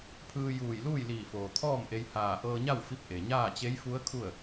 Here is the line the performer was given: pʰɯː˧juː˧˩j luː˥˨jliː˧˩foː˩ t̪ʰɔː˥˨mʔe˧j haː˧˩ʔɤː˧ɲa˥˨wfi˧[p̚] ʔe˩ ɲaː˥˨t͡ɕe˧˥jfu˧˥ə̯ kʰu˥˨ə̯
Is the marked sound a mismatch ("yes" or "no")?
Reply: no